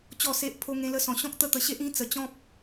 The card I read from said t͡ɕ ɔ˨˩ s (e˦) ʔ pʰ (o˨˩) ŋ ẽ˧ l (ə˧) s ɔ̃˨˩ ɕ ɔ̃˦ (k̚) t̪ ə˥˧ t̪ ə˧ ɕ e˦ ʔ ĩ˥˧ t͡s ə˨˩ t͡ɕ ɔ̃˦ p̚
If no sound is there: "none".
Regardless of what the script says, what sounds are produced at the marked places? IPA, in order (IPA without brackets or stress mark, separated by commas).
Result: e˨, o˧, ə˧, k̚